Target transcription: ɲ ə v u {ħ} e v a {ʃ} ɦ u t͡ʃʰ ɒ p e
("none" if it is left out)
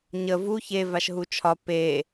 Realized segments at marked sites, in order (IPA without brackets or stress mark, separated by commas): ç, ʃ